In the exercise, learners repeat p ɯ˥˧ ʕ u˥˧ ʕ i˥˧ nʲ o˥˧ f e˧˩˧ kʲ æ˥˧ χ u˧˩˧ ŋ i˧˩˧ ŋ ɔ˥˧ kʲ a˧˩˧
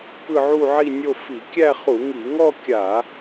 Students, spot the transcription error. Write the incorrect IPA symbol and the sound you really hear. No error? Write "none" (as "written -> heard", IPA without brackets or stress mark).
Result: e˧˩˧ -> i˧˩˧